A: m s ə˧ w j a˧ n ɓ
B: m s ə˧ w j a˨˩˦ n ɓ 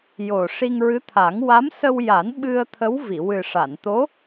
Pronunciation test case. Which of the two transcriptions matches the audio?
B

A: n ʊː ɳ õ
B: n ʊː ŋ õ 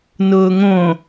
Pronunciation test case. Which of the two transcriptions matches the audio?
B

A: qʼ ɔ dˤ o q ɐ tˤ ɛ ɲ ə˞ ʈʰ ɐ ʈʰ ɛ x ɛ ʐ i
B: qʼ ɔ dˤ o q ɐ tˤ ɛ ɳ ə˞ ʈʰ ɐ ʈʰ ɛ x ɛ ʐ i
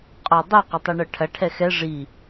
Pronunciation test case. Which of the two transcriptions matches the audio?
B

